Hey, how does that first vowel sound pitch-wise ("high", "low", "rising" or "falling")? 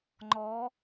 rising